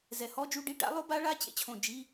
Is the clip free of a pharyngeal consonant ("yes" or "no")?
yes